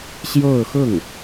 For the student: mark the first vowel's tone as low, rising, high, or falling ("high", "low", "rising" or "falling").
falling